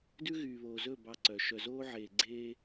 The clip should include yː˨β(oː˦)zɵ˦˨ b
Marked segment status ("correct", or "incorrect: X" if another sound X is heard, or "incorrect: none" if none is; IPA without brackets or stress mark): incorrect: oː˨